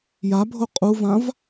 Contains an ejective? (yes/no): yes